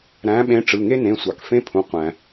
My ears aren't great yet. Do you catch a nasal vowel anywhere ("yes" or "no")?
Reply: yes